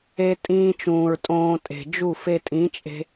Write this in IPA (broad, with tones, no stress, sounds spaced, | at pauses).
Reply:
e˧ tʼ ĩː˧ t͡ʃ ũː˨ ɹ tʼ õː˧ tʼ e̤˨ d͡ʒ u˦˨ f e˧ tʼ ĩ˨˦ t͡ʃʼ e̤˧